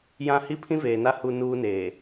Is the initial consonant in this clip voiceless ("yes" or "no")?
no